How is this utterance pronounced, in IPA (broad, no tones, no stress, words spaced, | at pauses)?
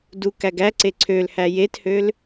du kæɡæǀe ǀʰølhæ jethøl